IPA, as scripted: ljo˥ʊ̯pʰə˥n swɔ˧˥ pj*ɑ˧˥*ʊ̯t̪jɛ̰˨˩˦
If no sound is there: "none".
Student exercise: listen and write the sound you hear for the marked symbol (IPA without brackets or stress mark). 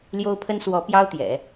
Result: ɑ˥